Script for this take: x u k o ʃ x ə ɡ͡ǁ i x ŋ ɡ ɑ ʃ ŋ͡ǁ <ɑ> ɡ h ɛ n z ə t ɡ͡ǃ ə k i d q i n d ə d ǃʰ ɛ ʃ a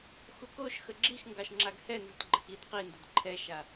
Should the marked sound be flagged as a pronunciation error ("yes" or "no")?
yes